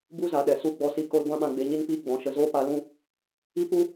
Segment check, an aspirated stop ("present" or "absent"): absent